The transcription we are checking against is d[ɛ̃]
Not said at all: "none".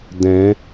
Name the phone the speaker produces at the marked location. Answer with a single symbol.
ɛ̃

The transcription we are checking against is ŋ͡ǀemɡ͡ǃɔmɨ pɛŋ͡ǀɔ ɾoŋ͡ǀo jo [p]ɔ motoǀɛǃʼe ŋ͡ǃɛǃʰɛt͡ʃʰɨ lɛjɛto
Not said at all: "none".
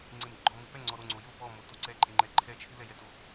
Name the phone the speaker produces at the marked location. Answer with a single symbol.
p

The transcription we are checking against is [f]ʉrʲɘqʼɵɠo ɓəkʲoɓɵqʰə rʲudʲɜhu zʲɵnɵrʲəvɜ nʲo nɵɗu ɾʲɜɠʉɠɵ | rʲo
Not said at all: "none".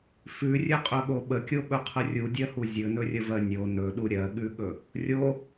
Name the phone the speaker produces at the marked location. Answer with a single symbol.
f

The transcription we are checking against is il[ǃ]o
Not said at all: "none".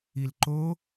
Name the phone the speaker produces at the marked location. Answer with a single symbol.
ǃ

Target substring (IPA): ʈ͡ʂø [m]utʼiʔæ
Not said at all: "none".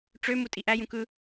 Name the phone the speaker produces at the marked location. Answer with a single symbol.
m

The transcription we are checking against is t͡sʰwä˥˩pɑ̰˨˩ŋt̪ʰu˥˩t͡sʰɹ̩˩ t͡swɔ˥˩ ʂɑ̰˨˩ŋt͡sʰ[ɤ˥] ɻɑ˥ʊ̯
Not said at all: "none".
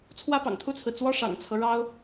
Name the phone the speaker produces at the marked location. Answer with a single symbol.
ɤ˦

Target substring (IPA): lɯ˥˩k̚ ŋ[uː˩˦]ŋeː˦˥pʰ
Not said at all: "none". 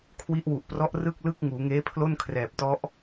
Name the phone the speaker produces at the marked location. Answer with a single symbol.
uː˩˦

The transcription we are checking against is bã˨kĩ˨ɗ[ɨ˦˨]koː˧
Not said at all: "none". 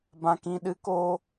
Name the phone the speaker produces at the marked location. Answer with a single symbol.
ɨ˨˦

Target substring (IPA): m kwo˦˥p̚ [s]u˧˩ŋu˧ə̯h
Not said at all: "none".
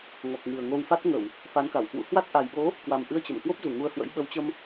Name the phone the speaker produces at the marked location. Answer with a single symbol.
z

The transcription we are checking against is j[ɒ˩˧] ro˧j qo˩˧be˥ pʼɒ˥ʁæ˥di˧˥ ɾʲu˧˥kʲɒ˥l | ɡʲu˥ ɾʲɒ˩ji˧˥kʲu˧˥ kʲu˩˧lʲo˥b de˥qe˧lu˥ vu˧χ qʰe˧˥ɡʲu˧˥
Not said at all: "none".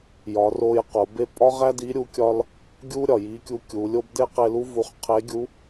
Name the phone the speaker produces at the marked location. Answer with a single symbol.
ɒ˩˧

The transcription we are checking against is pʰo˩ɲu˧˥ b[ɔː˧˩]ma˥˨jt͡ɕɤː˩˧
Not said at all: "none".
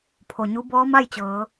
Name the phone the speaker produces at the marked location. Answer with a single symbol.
ɔː˧˥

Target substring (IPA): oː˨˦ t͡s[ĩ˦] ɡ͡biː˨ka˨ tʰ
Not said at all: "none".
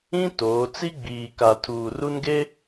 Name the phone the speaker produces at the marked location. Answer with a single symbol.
i˦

